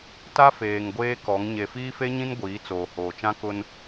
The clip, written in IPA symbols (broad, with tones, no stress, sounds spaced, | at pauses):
t a˦ f eː˨ ŋ ɡʷ eː˦ k ɔ˨˦ ŋ ɲ e˨ f iː˦ f e˦ ɲ ĩ˦ n ɡʷ iː˨˦ t͡s oː˨ h oː˨ t͡ʃ ã˦ k ʊ˦ n